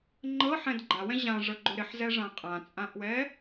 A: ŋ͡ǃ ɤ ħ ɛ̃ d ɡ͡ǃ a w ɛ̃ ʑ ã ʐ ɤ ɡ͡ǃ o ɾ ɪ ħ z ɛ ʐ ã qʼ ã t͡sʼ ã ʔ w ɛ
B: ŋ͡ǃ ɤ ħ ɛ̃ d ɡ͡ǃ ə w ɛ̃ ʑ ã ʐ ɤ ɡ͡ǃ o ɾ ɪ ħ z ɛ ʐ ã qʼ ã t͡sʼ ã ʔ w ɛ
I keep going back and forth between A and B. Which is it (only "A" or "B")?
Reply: A